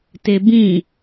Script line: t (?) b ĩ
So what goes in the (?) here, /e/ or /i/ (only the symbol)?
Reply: e